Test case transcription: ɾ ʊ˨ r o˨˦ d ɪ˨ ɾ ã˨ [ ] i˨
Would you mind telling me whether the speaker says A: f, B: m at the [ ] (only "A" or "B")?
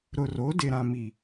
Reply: B